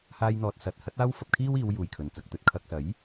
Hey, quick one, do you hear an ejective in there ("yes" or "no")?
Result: no